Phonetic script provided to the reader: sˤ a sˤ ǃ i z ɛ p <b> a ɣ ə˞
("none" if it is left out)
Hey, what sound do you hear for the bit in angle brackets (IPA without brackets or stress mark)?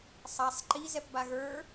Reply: b